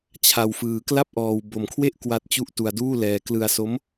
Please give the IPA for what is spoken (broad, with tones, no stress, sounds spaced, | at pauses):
t͡ɕʰ a˧ w f ɯː˧ k l a˥˩ p̚ ʔ ɔː˧ w b o˧ m kʰ w e˥˩ ʔ k w a˦˥ t̚ t͡ɕ u˦˥ ʔ t u˧ a̯ d uː˥˩ l ɛː˧ k l ɯ˧ a̯ s o˦˥ m